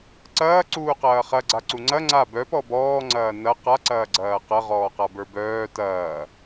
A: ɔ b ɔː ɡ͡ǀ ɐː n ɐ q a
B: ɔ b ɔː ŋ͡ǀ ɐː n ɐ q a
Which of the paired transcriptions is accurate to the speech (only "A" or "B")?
B